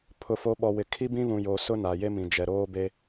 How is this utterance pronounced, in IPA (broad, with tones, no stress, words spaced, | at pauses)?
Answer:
pʰʊ˨ fo˨˦ɓɔ˨wɪ˨ kʰi˦bĩ˦βũ˨jo˨ sʊ˦ na˨je˦mĩ˨ d͡ʒɛ˨ɾoː˦be˦